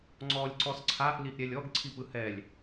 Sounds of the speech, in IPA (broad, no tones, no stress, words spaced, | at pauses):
ŋ͡ǀɔlʲ ǀɔsǀʰaʔ liʔɾʲɛlʲɔɡ ǀʰipɯhɛlʲ